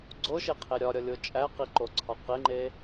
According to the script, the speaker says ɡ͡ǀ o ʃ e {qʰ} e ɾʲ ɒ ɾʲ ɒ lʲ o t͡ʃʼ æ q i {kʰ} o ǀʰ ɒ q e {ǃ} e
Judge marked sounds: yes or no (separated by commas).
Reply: yes, no, no